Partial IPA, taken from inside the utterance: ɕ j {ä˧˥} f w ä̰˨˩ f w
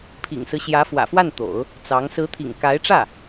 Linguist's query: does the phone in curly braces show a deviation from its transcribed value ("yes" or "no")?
no